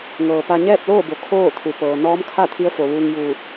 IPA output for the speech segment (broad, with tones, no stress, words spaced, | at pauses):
ŋɤː˩pa˧ ɲɛː˥˨p̚loː˥˨bo˩ kʰoː˥˨t̪ʰu˩ pɤː˩ nɔː˧˥mkʰa˥˨ t̪ʰi˧˥ə̯fo˩ʋuː˧ŋ juː˧˩t̚